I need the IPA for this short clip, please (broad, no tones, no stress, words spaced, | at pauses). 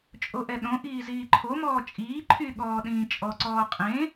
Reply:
t͡ʃʼoʔɛɗõ ʔiːziːǃʰomɔː t͡ʃʼiː ǃʰyɠɔːɗĩː t͡ʃʼɔǀɔː qʼẽ